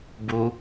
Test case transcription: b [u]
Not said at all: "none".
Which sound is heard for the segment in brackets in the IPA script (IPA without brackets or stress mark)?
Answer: u